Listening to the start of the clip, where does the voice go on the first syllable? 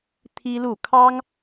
high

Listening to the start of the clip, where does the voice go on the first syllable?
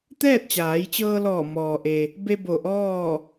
falling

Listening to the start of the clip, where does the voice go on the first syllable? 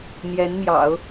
rising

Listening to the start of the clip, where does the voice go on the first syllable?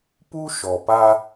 high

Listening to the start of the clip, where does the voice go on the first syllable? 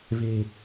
low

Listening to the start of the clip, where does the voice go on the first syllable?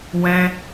high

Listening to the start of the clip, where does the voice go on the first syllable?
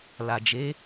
low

